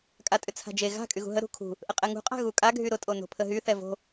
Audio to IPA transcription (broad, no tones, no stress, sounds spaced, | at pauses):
kʼ a tʼ ʏ t͡sʰ a̤ d͡ʒ e ɣ a̤ kʼ y ɣ ṳ ɦ ə ɾ ṳ kʰ ṳ | ʔ ə qʼ ɛ ŋ ṳ qʼ a̤ ɣ u kʼ a ɡʱ y ɾ ʊ tʼ o n o̤ pʰ ə ɦ y θ ɛ v o̤